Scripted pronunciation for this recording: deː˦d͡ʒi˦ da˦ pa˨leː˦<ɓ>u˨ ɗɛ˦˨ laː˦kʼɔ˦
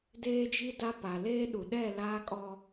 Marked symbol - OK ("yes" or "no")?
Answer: no